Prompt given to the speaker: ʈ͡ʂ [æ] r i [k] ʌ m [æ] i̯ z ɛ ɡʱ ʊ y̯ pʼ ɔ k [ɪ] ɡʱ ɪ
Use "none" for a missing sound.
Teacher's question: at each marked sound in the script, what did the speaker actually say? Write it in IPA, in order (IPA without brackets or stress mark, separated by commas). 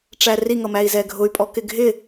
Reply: æ, ŋ, æ, ɪ